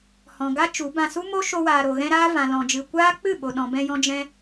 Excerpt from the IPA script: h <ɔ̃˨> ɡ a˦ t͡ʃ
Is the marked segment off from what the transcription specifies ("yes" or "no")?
no